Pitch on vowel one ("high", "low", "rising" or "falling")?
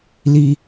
high